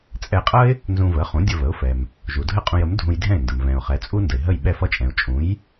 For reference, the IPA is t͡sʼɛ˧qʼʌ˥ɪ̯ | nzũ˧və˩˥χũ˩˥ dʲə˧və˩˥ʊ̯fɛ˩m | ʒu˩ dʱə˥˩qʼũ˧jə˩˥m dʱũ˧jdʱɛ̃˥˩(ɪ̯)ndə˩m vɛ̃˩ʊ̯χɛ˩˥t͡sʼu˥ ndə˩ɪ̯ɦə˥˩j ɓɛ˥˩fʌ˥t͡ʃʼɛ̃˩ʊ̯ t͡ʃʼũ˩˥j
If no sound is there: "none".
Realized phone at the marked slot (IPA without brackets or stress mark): ɪ̯